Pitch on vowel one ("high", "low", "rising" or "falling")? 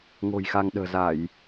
low